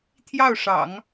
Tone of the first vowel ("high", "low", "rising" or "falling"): falling